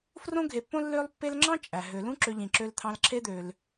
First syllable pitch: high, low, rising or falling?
high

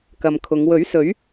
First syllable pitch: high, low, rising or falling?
low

